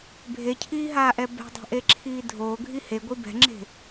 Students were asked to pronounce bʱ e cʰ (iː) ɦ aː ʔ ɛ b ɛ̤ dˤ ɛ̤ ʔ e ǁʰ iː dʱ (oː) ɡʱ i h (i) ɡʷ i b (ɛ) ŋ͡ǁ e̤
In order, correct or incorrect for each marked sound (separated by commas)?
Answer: correct, correct, incorrect, incorrect